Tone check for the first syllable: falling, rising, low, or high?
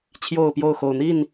falling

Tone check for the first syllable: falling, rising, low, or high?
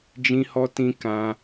high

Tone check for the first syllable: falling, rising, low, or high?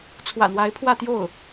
low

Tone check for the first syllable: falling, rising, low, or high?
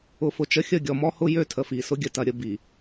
low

